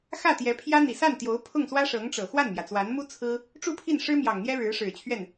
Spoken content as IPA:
xä˥˩t̪jɛ˧˥pʰjä˥ n̪i˨˩sa˥˩nt̪jo˧˥ʊ̯ pʰʊ˥˩ŋ swä˥ʂɤ˧˥ŋʈ͡ʂɤ˨˩ xwa˥˩nmjä˩t͡swa˧˥nmu˥ t͡sʰɹ̩˥ | ʈ͡ʂu˥˧pʰi˥˩n ʂɻ̩˥mjɑ˨˩ŋn̪jɛ˥ɻɻ̩˧˥ ʂɻ̩˨˩t͡ɕʰɥɛ˥˩n

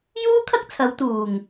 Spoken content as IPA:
juː˥kʰɐ˥k̚ t͡sʰɐ˨˧wt̪uː˨˩ŋ

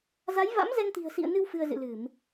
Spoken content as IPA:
za˨˦jva̰˧˥mzɛ˧ŋt̪i̤˨˩ə̯ sḭ˧˨ə̯nɨ˧w fɨ˧ə̯zɨ̰˧˨lɨ˧˩˨m

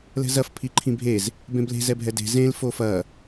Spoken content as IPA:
lɛ̤zɐf pʰiǃʰĩbʱez | bẽble̤ zɛbʱɛde̤ zẽl fofɐ

